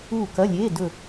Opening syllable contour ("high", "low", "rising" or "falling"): falling